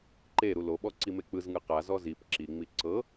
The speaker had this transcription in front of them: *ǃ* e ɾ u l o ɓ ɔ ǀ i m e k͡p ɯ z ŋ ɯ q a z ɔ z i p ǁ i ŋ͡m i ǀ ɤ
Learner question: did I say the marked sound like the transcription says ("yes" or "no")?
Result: yes